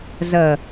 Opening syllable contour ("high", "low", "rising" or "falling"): low